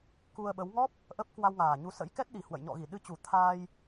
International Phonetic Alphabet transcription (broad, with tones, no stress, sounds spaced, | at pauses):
k u˧ ə̯ ɓ ə˨˦ w ŋ ɔ˦˥ p̚ | ʔ ə˦˥ p̚ k w a˧ w ŋ aː˨˩ ɲ u˨˦ s ə̰˧˥ j k ɛ˦˥ t̚ ɗ i˨˩ h w ə̰˧˨ j ɲ ɔ̰˧˨ ɣ i˧˩ ɗ ɨ˧ t͡ɕ u˨˩ t̪ʰ aː˧ j